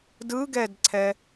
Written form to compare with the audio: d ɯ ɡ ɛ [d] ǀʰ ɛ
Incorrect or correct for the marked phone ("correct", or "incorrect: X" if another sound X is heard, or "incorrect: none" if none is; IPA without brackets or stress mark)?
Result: correct